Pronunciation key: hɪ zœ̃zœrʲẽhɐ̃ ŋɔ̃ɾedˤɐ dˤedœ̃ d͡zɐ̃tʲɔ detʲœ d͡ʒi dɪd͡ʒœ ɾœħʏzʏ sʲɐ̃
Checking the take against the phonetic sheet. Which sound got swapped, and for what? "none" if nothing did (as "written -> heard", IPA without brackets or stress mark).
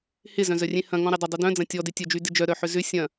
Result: i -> y